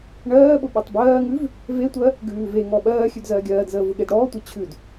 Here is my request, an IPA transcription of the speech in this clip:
ɳ ɜː ɓ ʊ ɓ ɜ tˤ b ɜː ŋ ʉ v | v e tʷ ɜ | ɡ ʉː v e ŋ ɔ ɓ ɜː xʲ ʉ d z ɜː ɡʲ ɜː d z əː v ʊ ɠ e d ɽ ɔː tʷ e t͡ɕʰ ʉ d

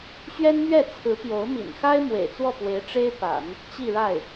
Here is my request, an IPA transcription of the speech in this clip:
ɕ ɥ ɛ˥ n m ɥ ɛ˥˩ t͡sʰ ɹ̩˧˥ p j o˧˥ ʊ̯ m ḭ˨˩ n x a˥ ɪ̯ m w ḛ˨˩ ɪ̯ t͡s w ɔ˥˩ p w e˧˥ ɪ̯ ʈ͡ʂ e˥ ɪ̯ p a̰˨˩˦ n | t͡ɕ i˥˧ ɻ a˥˩ ɪ̯

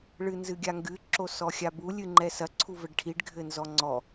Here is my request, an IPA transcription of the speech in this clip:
ɭ ɨ n z ɨ ɡʲ a ŋ ɡ ɨ ǁ o s ɔ xʲ a b u lʲ ɨ ŋ͡ǃ ɛ s ɐ ǀʰ u v ɘ ɖ ʈʰ i ɖ ɡʱ ɘ n z ɔ ŋ͡ǀ ɔ

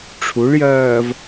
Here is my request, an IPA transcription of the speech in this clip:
ʈ͡ʂʰ u ɭ j ɜː v

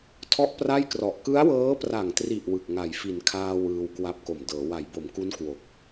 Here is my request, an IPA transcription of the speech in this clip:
tʰ ɔ˥˩ ʔ p r a˥˩ j k r ɔ˨˩ ʔ k ɯ˦˥ a̯ w ɤː˦˥ p r a˨˩ ŋ t r i˨˩ ʔ w ɯ˨˩ k̚ ŋ a˨˩ j f i˩˦ n kʰ aː˧ w ɯː˧ w k w a˦˥ p̚ k o˨˩ m d ɤː˩˦ w a˩˦ j b o˩˦ m k u˦˥ n k w o˨˩ k̚

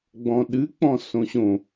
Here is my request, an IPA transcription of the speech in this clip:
ɡ͡b ɔ̃ ɗ ɨ k͡p ɔ̃ s õ ɕ õ

